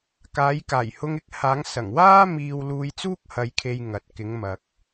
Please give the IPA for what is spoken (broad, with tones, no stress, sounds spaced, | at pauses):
k aː˨˧ j k aː˨˩ j h ʊ˧ ŋ ɪ˧ k̚ h aː˨˧ ŋ s ɐ˨˩ ŋ w aː˥ m iː˧ w l uː˧ j t͡s uː˥ k̚ h ɐ˧ j kʰ e˧ j ŋ ɐ˨ t̚ k ɪ˨˧ ŋ m ɐ˨ k̚